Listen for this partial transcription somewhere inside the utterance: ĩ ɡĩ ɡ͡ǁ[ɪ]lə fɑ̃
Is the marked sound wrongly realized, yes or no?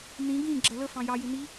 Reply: yes